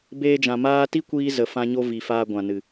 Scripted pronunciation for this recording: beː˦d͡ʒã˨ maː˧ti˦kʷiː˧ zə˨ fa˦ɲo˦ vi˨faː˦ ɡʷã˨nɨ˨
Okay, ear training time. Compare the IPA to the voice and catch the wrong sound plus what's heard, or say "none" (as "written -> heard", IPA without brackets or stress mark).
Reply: a˦ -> ã˦